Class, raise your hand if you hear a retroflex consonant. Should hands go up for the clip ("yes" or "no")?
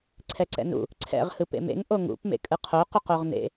no